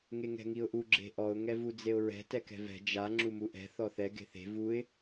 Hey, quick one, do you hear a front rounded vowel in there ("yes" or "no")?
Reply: no